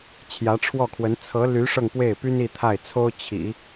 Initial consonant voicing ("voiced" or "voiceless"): voiceless